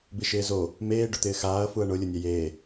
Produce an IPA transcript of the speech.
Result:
b i ʃ ɪː z o | m eː ɖ ʊ t̪ ɪː x aː ɐ̯ f u ɐ̯ ɳ ʊ lʲ ʊ nʲ ɛ j eː

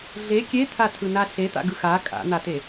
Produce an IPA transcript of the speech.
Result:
ɮ e kʲ e t̪ʰ a tʰ ɯ n a ɬ e t̪ a̰ ɡ ɯ x a kʼ a̰ n̪ a t e

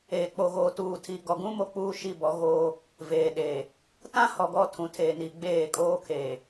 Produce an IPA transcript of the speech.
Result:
eː˨ k͡p o˨ ɣ oː˨ t uː˨ tʰ i˨ ɡ ɔ˨ ɡ ũ˦ m o˦ k͡p uː˦ ʃ i˦˨ b ɔ˨˦ ɣ oː˦ | v eː˨ ɗ eː˨ | t ã˦ h ɔ˨ ɡ ɔ˦˨ tʰ ũ˨ tʰ eː˨ n i˨ ɡ͡b eː˦˨ kʼ oː˦ kʰ eː˨

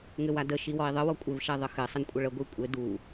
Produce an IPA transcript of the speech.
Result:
ŋ ɘ w a d ə ʃ i w ɔ i̯ ðˤ ə w ɔ kʷʼ ɘ v ʃ ɛ ðˤ ə x ɘ sˤ ə n kʷʼ ə ɭ ə ɡʷ i kʷʼ ɘ d u

